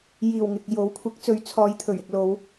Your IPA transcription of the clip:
jiː˨˩wŋɪ˨k̚ jo˨˥wkʷʰɪ˨˥k̚t͡sɵ˨˧ɥ t͡sʰɔː˨˧j t̪ʰɵ˨˩ɥɪ˧k̚ lo˨˧w

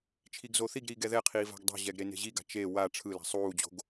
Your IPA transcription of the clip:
t͡ʃʰiɡzoθiɡɾiːɡ ɛðɛqʰiː va̤ɡdˤo̤ʑɛɡ ɾene̤ʑiɡa̤ t͡ʃe wa ʈ͡ʂʰɯla̤ sˤuːd͡ʑo̤ɡ

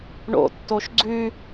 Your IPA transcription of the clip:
ɳo̰tːoʃ ɡ͡ǀʉ

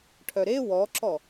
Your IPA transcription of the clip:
ʈʰœɾe wɔǁɔ

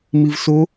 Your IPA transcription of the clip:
mivso

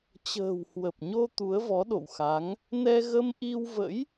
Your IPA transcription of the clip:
t͡ɕə̤ː˨˩whwə˨˩p̚ɲo˧ t̪u˨˦ə̯vɔ˨˦ɗo̰˧˨wxa˨˦ŋ | nɛ˧ɣə˧mʔi˧wvə̰˧˥j

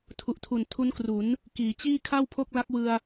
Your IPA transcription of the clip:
tʰu˨˩ʔtʰu˨˩n tʰu˦˥nkru˩˦n | kiː˩˦ t͡ɕiː˥˩ kʰa˥˩wpʰo˥˩k̚la˦˥k̚ wɯ˧a̯

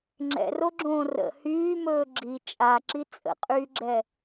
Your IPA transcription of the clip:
ŋ͡ǁɛ̰roɡ͡ǁõː rə̰ hyːmɵː ɡ͡ǁi t͡ʃʼaǁi t͡sʼə̰qʼyːɡ͡ǁɛ

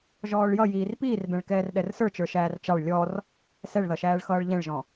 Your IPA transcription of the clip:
ʒɔːɭjʌ jiːrpiːrbɛ̃ɭ kɛːrɗɛrsə˞ t͡ʃə˞ʃæːrt͡ʃɑɭ lʲɔr | sɛɭðʌʃæːɭxʌːɭ ʎɛ̃ɭʒɔ̃

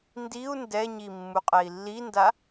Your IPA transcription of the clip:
ndiu̯ ndɛɲimːuqʼɛi̯ lːinda

